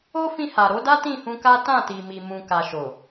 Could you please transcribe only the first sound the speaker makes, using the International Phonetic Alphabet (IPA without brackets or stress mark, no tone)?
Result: o